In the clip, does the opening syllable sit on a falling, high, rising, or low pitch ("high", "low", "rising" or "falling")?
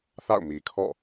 falling